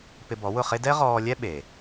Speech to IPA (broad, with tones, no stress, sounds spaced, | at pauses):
p ɪ˧ b ɔ˩˥ w ʊ˥˩ χ e˥ d ɛ˥ ʁ ɔː˧ lʲ ɛ˥ ɓ e˩